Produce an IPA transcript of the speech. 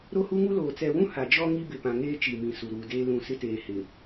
ɾ o˦ h u˦ ŋ u˦ l oː˨ t͡s ɛ˨ w ũ˦ h a˨ d͡ʒ ɔ˦ ŋ i˦ b ɪ˨ p ã˨ ŋ eː˦ t͡ʃ i˨ m ĩ˨ s u˨ ɾ uː˨ d eː˦ l ũ˦˨ s ɪ˦ t eː˨ h ɪ˨

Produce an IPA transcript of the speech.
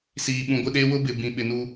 s iː˨ ɓ ũ˨ ɡʷ ɪ˦˨ ɗ eː˦ w ʊ˦ b ɪ˨ b ĩ˨ ɓ ɪ˨ n u˦

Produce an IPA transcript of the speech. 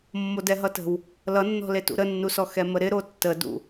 mː o d ɛ ɦ ʌ t ə̤ w | l ʌ nː ɔ̤ l e t ṵ ɾ ə nː u s ɔ x ɛ m ə ɾ ɪ ɾ o tː ə d ṵ

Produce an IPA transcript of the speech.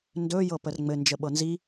n d ɵ j ɤ p ə r ŋ͡m ɘ n d͡ʒ ə ɓ ɤ n z i

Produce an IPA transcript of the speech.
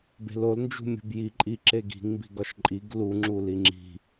b e̤ l o l n d͡ʒ ṳ mʲ ṳ b j i ǃʼ i ǁ e ɡ i̤ ŋ m b i̤ ɡ ɒ ʃ ǃʼ i ɡ l u ŋ͡ǁ u l i ŋ͡ǁ i̤

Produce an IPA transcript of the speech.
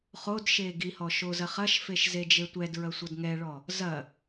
χ o d ʃ eː ɡ i h ɔ ʃ o z ɐ χ ɐ ʃ f e ʃ z e d͡ʒ e tʷ ɛ d ɹ ɐ sʷ ʌ d ŋ ɛ ɭ ɔ | z ɐ

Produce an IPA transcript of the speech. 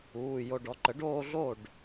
uː˩˧˩ j o˧˩ ɖ ɔ˩˥ ǃ ə˩˥ ɖ oː˥˧ ɮ o˥˩ ɖ

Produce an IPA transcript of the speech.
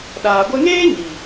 ɗ aː˨ ɡʷ ɛ˦ ŋ eː˦ ɲ i˨

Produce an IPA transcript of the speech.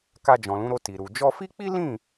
k a˧ d͡ʒ ɔ̃˨ l ũ˨˦ ɾ o˧ t i˨ ɾ u˨ d͡ʒ ɔ˧ f i˦ k͡p i˦ l ĩ˦˨

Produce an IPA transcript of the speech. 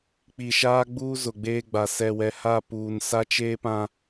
k͡p i˨ ʃ aː˦ ɡ͡b uː˦ z ʊ˨ ɡ͡b eː˦ ɡ͡b a˨ s ɛ˨ w ɛ˨ h a˦˨ p uː˨ n s a˦ t͡ʃ eː˦ p ã˦

